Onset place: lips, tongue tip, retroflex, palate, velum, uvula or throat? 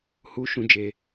throat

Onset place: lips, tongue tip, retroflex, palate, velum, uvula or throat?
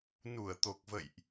tongue tip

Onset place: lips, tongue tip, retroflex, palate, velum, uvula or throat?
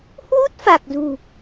throat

